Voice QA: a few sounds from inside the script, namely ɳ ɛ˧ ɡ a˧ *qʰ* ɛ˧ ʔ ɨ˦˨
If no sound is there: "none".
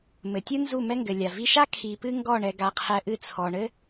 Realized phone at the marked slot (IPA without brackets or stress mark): qʰ